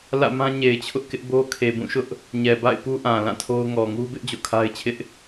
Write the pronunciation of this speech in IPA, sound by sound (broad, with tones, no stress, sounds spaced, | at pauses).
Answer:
l ä̰˦˨ m ã˦ ɲ e˨ ɪ̯ t͡ɕʰ ʊ˦ ʔ k ɪ˦ ʔ b o˦ kʰ e˨ b ũ˦˨ ʃ ʊ˦ ʔ | ɲ ɛ˨ b a̰˦˨ ɪ̯ p u˦ ʔ ã˨ l ã˦˨ tʰ o˦ ʊ̯ ŋ ɔ˨ ŋ u˦ b ɪ˦ ʔ d͡ʑ o̰˦˨ kʰ a˦ ɪ̯ t͡ɕʰ ɪ˦ ʔ